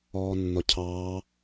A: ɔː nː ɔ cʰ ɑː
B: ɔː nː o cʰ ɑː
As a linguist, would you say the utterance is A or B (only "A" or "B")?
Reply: A